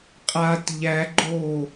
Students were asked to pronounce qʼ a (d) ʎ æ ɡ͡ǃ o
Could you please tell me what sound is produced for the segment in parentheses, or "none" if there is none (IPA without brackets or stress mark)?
t